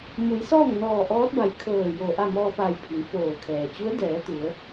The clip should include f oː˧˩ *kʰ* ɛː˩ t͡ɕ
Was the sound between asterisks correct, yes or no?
yes